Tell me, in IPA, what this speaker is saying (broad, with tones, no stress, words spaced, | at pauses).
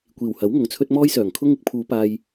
kʷiː˨˩whɐ˨˥w ŋʊ˨˧ŋt͡sʰɵ˥t̚ mɔː˥jsœː˨˩ŋkʰʊ˥ŋ ɪ˥k̚pʰuː˨˧ paː˥j